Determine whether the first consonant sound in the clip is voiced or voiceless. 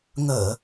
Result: voiced